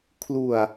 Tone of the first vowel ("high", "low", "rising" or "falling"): low